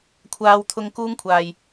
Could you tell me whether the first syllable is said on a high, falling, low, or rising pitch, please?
high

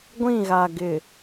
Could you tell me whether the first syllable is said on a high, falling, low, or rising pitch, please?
falling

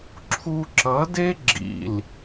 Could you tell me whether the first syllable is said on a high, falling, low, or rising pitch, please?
high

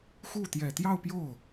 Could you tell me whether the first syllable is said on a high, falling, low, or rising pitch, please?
falling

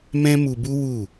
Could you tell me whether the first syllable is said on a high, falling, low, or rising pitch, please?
high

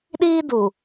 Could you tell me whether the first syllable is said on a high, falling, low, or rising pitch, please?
high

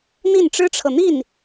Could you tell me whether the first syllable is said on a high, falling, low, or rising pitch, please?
falling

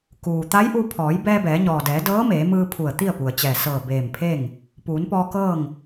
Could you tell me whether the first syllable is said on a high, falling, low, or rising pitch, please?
low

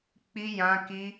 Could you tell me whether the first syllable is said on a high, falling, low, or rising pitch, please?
high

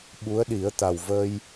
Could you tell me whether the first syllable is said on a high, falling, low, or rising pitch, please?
rising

